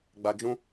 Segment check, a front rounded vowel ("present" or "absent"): absent